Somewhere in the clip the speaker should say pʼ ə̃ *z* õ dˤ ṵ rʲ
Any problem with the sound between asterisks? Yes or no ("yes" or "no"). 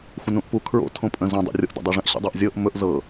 no